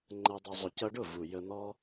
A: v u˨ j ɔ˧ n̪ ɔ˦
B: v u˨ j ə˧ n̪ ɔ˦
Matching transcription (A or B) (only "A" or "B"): B